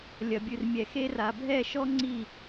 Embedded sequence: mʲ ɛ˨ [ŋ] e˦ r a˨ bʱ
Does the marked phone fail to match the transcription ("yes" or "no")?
yes